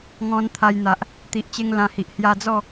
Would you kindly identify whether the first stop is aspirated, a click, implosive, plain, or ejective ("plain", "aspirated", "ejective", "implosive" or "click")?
aspirated